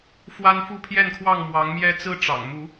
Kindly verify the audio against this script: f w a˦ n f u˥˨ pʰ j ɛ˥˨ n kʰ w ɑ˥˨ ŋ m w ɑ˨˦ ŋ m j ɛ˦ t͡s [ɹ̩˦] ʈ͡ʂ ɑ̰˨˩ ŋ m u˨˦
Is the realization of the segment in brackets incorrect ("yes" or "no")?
no